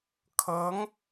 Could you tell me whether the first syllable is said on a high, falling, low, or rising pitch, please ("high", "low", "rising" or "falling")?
rising